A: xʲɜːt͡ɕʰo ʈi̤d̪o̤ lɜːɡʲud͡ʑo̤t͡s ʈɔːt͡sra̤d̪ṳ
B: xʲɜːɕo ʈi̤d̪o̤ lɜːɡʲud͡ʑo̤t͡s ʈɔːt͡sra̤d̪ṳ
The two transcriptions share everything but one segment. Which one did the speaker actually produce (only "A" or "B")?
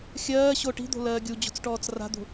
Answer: B